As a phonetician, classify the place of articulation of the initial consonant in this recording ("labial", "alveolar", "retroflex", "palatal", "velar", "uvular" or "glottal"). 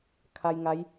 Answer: velar